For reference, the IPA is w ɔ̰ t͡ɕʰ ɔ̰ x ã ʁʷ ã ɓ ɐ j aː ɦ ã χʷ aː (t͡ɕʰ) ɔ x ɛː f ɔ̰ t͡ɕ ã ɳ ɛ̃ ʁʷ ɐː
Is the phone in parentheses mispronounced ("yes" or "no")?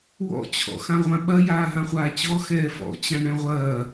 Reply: yes